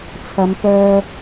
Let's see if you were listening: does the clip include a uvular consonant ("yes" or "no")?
no